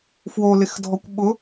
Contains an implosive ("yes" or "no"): yes